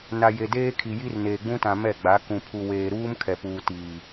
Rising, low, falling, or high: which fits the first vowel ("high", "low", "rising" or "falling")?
low